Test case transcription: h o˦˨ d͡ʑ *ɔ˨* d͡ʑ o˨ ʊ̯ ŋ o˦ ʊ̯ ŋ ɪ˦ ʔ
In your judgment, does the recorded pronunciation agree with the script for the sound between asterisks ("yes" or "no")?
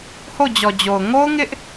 yes